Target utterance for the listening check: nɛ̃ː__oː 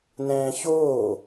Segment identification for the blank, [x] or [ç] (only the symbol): ç